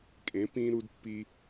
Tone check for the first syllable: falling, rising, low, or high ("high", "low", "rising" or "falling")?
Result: rising